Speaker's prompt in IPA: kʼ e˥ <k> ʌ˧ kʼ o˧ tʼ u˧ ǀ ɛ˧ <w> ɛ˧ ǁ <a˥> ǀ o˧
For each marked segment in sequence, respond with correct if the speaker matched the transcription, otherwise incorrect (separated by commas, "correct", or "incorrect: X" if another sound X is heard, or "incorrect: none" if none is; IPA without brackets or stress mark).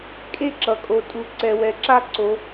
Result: incorrect: ǁ, correct, correct